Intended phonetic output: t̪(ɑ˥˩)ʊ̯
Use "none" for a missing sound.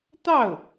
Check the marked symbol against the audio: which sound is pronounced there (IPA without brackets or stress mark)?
ɑ˥˩